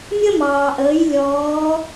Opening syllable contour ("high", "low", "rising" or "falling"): high